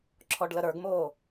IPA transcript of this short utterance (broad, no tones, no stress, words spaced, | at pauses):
ǁʰɔɖləɾə˞ɡmoː